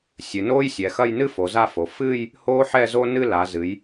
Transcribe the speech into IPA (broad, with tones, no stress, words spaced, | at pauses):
sʲɨ˩˧noː˥jsʲɛ˩˧xɐ˥˧j nɨ˥ fo˩˧za˥˧fo˩˧ fɨː˥˧j | hoː˥ħɛ˥˧zo˥ nɨ˥˧la˩˧ zɨ˩˧j